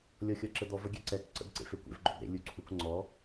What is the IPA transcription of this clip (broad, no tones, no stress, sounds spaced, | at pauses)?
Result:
lʲ ɔ xʲ ɔ ǁ ə d̪ ɔ v ə ɡʲ ɛ ǀ ɛ k ǀ ə̰ b ǀ ḛ f e kʷ ḛ v ɡ͡ǃ o b ɾ ḛ lʲ u ǀʰ u k ŋ͡ǀ ɔ